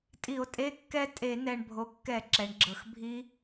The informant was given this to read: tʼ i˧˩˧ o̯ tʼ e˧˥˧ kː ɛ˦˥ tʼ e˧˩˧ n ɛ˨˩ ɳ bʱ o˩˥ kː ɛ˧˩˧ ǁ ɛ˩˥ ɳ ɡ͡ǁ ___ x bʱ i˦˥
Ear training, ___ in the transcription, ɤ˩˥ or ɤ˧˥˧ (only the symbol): ɤ˩˥